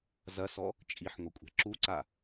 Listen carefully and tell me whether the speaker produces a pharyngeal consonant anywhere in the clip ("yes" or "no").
yes